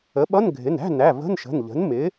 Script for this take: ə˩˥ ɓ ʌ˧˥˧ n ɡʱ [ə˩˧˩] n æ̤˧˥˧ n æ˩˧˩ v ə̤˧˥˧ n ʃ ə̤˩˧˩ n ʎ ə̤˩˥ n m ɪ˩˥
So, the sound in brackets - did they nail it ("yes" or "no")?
no